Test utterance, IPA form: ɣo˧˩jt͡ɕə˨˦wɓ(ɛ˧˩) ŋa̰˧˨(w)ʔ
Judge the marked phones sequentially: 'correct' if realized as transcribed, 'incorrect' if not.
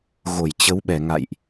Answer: correct, incorrect

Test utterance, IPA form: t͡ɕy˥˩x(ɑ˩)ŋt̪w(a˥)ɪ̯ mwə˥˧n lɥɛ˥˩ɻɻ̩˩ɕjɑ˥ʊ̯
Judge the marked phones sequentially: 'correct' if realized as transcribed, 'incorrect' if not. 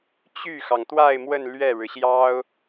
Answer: correct, incorrect

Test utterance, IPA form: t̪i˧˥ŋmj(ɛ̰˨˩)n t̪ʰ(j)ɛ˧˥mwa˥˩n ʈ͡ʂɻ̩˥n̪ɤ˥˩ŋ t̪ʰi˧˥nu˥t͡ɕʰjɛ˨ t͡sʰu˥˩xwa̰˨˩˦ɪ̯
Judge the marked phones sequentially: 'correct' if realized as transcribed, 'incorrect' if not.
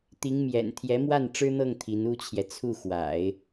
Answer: correct, correct

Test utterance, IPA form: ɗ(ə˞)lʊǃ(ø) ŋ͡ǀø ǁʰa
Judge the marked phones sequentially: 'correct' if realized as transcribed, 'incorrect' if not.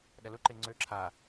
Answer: incorrect, incorrect

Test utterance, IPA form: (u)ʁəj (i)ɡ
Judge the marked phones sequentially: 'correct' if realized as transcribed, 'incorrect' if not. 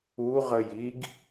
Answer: correct, correct

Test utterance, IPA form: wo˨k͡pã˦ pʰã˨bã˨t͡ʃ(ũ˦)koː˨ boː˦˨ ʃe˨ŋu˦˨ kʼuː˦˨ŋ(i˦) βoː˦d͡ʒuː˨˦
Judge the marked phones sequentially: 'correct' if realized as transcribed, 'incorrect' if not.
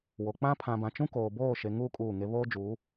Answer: correct, incorrect

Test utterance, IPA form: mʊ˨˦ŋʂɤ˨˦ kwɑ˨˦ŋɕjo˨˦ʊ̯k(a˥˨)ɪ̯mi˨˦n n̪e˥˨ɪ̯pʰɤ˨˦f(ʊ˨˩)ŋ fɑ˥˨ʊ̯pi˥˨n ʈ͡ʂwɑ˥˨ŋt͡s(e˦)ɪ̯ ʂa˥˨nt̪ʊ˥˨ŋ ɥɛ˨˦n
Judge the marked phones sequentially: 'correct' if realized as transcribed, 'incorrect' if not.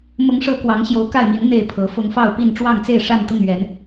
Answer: correct, incorrect, incorrect

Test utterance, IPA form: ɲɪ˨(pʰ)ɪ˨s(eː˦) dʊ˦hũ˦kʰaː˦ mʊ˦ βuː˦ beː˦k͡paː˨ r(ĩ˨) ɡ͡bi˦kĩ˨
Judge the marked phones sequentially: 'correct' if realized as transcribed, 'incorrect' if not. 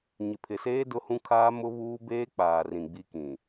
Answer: correct, correct, correct

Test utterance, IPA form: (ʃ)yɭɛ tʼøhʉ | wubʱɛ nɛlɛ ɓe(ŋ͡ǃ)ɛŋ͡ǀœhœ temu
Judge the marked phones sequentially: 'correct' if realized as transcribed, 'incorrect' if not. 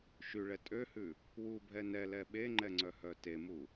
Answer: correct, correct

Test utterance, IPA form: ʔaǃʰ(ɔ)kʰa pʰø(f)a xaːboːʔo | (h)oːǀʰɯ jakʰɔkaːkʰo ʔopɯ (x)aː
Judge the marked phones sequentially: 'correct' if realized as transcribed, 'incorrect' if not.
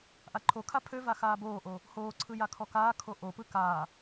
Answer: incorrect, incorrect, correct, incorrect

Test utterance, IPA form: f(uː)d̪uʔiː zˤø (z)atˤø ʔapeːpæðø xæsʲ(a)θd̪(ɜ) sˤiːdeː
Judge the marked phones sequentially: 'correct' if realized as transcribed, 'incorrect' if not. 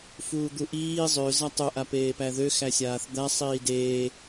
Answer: correct, correct, incorrect, incorrect

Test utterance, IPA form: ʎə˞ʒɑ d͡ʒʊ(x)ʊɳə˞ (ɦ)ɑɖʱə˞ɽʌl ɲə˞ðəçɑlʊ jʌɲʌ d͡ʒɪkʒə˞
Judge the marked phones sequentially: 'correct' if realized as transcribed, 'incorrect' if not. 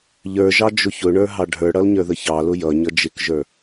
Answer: incorrect, correct

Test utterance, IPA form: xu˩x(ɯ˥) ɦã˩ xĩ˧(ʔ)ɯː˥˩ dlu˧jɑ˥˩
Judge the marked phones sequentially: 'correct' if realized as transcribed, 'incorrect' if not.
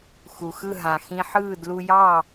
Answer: incorrect, incorrect

